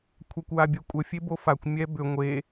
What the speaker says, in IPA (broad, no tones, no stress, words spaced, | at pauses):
kʷʰakʷwabʲɛkʷʼə fʲebofakʷ mʲɛbʏ ŋʷe